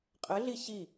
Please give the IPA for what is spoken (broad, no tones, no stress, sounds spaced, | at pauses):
qʼ ɘ ɮ i ɕ i